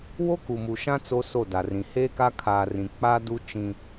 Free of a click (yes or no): yes